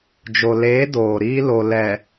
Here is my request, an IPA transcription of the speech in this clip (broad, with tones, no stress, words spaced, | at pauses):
d͡ʒo˨leː˨˦ doː˨ɾiː˦lo˨ lɛ˨